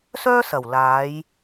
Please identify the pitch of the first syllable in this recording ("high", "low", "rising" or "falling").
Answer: high